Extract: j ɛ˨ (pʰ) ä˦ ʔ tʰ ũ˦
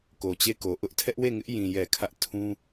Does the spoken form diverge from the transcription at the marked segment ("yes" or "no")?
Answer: yes